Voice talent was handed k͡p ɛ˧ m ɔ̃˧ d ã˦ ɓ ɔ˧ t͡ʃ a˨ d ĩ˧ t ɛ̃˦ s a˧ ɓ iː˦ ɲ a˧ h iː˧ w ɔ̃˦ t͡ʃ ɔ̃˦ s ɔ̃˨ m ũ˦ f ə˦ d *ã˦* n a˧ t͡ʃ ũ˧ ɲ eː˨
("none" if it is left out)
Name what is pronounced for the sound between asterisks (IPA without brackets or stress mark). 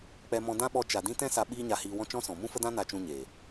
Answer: ã˦